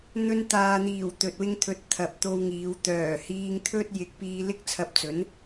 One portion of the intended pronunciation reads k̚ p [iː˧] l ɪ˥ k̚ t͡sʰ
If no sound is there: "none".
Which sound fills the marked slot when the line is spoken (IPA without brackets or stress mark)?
iː˧